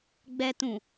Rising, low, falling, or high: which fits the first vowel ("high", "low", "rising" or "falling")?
low